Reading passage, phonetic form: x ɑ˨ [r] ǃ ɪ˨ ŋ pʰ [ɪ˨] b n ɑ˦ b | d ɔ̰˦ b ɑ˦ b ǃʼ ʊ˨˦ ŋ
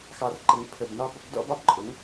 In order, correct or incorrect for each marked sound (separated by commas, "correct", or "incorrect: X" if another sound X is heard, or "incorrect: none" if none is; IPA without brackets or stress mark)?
correct, incorrect: ə˨